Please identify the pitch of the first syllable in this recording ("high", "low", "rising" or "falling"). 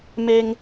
high